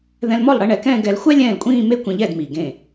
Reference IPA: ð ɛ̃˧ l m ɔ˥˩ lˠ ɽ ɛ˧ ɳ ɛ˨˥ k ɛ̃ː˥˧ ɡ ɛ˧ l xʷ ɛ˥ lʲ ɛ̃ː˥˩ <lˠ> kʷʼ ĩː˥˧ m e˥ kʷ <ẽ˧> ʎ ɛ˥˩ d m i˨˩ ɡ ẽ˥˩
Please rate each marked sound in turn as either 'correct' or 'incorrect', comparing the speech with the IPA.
incorrect, incorrect

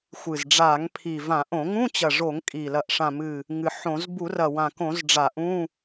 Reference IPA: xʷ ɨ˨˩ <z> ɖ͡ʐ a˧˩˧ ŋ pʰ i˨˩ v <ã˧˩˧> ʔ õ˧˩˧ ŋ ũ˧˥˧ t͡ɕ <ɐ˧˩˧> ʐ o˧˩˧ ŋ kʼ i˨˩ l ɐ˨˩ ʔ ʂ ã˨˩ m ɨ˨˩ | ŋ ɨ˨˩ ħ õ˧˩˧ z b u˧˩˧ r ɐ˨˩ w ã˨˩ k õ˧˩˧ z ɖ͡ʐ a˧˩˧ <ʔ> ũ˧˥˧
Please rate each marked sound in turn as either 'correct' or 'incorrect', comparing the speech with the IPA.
correct, correct, incorrect, correct

